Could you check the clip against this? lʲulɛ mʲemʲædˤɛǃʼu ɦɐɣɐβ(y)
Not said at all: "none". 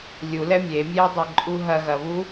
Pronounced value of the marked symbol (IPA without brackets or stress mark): u